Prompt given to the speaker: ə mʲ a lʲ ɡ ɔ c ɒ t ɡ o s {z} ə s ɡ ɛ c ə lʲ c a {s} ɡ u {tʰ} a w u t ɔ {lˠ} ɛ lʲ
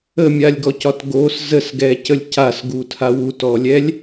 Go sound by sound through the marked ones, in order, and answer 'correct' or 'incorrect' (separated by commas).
correct, correct, correct, incorrect